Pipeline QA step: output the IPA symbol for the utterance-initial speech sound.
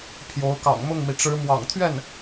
pʰ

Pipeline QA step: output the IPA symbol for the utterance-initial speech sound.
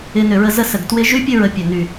ɪ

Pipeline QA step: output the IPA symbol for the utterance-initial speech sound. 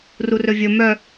r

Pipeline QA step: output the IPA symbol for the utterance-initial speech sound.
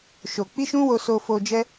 ʃ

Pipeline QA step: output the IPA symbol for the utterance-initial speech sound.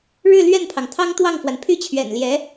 ɻ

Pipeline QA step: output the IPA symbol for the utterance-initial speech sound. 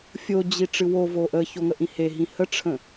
fʲ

